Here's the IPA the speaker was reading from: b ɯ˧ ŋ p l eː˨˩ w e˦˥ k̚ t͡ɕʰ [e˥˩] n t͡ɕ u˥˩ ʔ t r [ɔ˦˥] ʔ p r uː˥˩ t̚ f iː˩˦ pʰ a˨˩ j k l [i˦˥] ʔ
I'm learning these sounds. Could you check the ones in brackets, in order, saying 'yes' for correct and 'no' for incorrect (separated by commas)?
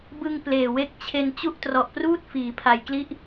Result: no, no, yes